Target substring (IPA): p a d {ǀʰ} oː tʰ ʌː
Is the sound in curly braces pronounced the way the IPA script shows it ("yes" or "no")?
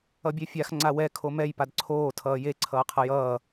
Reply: yes